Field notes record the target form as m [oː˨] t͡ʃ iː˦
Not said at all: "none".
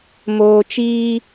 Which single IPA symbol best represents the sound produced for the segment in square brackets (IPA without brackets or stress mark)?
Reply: oː˨